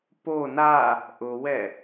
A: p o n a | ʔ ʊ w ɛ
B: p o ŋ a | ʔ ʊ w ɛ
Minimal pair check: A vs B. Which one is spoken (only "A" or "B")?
A